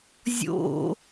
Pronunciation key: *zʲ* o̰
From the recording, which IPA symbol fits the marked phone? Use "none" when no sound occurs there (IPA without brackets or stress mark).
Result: zʲ